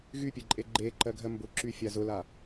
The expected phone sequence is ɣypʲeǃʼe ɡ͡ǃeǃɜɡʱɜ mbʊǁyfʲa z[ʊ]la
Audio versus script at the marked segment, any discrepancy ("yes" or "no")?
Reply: no